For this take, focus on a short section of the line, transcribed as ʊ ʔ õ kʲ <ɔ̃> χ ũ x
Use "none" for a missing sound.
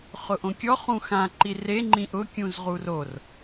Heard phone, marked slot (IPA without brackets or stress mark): ɔ